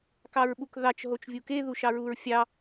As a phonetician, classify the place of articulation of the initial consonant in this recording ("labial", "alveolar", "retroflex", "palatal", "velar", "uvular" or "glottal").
velar